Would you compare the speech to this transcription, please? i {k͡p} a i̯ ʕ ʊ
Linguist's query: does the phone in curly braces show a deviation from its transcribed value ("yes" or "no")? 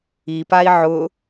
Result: yes